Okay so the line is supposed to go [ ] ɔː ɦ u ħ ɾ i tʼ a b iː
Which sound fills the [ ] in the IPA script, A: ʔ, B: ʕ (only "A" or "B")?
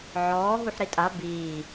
B